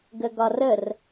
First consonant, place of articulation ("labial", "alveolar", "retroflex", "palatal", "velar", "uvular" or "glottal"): velar